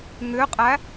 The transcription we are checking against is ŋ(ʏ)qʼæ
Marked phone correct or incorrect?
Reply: correct